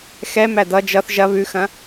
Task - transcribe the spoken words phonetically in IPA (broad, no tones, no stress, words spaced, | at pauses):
xɛmæ dʌ d͡ʒʌθ ʒɐ βʉxɐ̃